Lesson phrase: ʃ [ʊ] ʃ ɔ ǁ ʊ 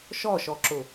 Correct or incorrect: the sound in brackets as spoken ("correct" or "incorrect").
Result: incorrect